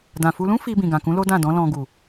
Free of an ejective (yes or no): yes